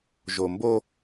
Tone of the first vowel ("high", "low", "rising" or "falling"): low